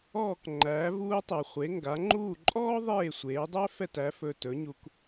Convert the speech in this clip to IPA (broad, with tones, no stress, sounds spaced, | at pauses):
ɔː˥˩ k ŋ͡ǃ æː˩˥ v uː˧ tˤ u˩ χʷ e˩˥ ŋ ɡ a˩˥ ŋ͡ǃ uː˥˩ ǃʼ ɔː˥ ðˤ eː˥˩ sʷ eː˩˥ dˤ æ˥ f ɛ˥˩ t æ˩˥ f ɵ˧ t ɵ˩˥ ɲ u˧ k